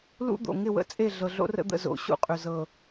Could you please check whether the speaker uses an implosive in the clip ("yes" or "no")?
no